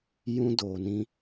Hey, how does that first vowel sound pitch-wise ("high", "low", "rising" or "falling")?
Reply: high